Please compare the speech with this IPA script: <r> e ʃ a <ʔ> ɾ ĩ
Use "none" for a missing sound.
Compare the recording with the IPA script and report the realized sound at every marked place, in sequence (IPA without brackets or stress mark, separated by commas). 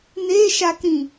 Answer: n̪, k